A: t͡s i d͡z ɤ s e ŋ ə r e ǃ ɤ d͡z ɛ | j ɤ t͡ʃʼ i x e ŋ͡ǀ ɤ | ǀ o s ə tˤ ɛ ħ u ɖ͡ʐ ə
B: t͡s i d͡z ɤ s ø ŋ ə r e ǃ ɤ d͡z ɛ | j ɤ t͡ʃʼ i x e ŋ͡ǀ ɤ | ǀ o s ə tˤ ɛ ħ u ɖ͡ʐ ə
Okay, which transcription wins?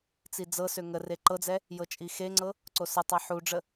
B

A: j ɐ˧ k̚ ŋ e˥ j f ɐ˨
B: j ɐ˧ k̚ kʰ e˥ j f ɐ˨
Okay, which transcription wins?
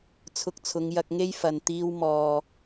A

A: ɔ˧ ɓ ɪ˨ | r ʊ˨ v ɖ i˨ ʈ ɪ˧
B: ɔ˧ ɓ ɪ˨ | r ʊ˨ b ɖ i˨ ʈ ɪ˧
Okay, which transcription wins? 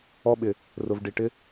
A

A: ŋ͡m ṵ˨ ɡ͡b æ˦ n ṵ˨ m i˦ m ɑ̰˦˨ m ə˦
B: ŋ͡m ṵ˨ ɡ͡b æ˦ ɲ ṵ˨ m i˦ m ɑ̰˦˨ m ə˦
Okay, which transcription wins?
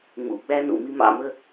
A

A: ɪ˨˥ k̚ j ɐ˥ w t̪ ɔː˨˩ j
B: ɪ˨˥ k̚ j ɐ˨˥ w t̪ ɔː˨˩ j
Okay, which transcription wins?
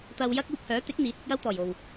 A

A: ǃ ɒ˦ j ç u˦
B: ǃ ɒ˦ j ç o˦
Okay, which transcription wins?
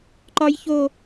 B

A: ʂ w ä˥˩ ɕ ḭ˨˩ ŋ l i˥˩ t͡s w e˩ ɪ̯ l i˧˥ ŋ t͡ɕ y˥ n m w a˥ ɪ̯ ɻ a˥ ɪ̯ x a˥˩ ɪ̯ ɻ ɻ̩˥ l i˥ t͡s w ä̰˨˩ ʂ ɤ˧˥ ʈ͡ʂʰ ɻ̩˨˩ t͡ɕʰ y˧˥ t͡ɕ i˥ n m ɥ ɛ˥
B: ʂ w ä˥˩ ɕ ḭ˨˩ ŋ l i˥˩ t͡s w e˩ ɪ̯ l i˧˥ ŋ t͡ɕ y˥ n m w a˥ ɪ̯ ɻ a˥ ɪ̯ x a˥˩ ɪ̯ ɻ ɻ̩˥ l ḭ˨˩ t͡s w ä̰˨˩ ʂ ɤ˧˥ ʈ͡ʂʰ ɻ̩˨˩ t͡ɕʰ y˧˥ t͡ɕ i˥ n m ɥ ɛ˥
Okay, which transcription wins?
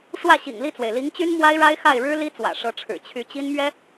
A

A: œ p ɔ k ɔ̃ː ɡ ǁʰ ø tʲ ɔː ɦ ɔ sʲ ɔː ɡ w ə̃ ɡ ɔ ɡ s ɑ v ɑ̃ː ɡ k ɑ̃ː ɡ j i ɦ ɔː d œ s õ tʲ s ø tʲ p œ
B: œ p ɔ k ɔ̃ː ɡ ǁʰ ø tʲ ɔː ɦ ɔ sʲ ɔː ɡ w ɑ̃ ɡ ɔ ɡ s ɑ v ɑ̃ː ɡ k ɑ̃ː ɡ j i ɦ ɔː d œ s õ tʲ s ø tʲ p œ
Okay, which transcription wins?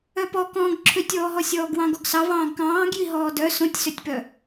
B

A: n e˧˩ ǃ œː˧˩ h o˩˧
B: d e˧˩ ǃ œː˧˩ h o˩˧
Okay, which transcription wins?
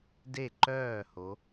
B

